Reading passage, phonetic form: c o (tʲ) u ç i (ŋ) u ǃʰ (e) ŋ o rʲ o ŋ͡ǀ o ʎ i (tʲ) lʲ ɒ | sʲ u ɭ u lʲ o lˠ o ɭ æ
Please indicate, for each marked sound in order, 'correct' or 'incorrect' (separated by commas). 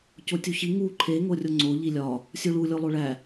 correct, correct, correct, incorrect